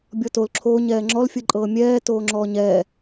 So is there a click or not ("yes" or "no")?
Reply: yes